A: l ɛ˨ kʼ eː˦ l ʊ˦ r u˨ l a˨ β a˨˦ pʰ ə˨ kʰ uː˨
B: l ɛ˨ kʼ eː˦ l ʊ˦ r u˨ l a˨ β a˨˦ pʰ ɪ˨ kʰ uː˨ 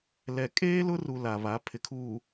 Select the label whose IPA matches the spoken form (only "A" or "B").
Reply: B